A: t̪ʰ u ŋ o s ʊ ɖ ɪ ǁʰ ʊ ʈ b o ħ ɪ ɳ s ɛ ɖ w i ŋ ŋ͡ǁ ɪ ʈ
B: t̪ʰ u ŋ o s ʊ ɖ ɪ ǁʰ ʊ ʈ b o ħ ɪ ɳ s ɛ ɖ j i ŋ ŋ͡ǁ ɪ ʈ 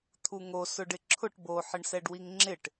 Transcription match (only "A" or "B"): A